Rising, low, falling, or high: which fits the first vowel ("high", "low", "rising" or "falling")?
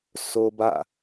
high